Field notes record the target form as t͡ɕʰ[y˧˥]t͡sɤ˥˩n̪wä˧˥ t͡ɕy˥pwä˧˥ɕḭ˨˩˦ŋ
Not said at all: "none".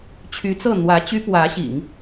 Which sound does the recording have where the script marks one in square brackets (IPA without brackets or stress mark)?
y˧˥